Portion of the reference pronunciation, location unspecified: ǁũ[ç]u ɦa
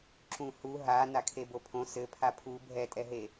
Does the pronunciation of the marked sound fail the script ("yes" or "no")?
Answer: yes